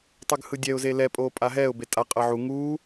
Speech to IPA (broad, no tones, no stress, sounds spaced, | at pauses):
tˤ ɯ ɡ h ɯ dʲ ɛ ʊ̯ z e l ɛ pʼ oː pʼ a ɦ ɛː ʊ̯ b e tʼ a qʼ ɤ ʕ u ŋ uː